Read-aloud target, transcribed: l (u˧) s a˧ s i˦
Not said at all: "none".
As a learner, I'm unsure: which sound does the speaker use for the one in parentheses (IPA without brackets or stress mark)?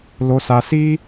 o˧